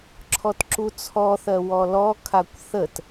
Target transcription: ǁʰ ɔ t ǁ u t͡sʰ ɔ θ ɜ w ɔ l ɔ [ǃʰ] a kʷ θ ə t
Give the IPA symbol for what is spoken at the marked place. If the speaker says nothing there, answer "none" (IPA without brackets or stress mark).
kʰ